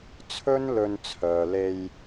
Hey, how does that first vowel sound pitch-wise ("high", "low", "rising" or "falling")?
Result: high